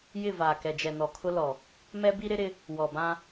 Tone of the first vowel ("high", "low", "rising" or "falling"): falling